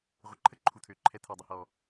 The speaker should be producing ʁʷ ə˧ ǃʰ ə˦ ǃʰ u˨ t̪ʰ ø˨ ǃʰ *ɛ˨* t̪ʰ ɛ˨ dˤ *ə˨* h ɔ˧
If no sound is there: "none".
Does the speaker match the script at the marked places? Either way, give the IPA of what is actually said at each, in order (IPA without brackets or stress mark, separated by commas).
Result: ɛ˧, ə˧